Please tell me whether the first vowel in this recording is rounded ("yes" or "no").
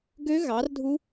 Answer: yes